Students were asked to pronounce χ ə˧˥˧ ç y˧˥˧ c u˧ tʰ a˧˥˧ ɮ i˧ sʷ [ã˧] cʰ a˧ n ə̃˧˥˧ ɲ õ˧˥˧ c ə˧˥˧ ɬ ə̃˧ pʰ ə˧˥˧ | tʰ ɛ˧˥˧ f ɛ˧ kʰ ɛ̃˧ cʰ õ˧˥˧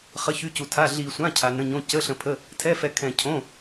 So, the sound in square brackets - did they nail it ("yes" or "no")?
no